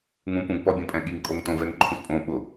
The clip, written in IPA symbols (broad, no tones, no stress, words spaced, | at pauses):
ŋũpũɡpɔbʲõ pʼɛ̃ɠiŋ kʼoŋtõvɛŋ ǃʰũspʼõ ɓʊ